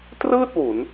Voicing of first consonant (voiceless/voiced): voiceless